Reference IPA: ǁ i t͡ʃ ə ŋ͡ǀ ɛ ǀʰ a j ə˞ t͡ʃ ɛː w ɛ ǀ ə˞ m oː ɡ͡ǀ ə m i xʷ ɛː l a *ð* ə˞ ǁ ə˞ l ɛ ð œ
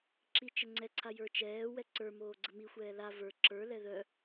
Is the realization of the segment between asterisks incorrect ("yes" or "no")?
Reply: yes